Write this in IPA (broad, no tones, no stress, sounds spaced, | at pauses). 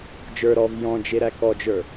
d͡ʒ ə˞ ɾ ɔ v j ɔ̃ d͡ʒ e ɾ æ k ɔ d͡ʒ ə˞